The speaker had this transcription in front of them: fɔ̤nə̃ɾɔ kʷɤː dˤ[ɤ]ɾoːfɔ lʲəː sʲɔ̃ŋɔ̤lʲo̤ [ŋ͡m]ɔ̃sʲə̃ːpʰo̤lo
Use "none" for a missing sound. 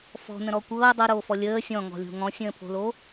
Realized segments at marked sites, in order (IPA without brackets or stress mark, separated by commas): ɤ, ŋ